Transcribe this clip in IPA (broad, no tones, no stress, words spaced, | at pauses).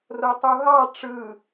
rotˤuɦɑ ʈ͡ʂɯ